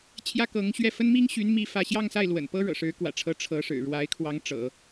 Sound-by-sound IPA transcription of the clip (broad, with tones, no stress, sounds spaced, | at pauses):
t͡ɕʰ j ä˥ k ɤ˧˥ ŋ ɕ ɥ ɛ˥˩ f ə˥ n m i˥ ŋ ɕ y˧˥ n m i˥˧ f ä˥˧ ɕ j ɑ˥˧ ŋ s a˥˩ ɪ̯ l w ə̰˨˩ n p ɤ˥ ɻ ɤ̰˨˩ ʂ ɻ̩˧˥ k w ä̰˨˩ ʈ͡ʂʰ ɤ˧˥ ʈ͡ʂʰ ɤ˧˥ ʂ ɻ̩˨˩ ɻ w a˧˥ ɪ̯ kʰ w ɑ˧˥ ŋ ʈ͡ʂ ɤ̰˨˩˦